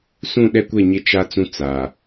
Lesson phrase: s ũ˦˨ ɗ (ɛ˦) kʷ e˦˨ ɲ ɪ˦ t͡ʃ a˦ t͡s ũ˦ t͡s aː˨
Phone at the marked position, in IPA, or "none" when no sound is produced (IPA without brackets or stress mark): ɛ˦